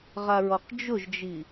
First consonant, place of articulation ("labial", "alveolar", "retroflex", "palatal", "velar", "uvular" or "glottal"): uvular